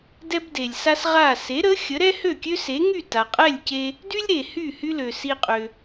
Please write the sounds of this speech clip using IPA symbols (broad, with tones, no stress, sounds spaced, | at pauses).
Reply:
d ɛ˥ b d e˩ lʲ s a˥ s ʁ a˥˩ s e˩˥ ɾ ə˩˥ xʲ ə˩˥ ɾ ɛ˥ h ø˥˩ kʲ ø˥ s e˩˥ ŋ y˥˩ t a˩ qʼ ɛ˥˩ lʲ c e˧ | d y˥ lʲ ɾ e˩ h y˥˩ h y˥ l ø˩ s i˧ qʼ ø˩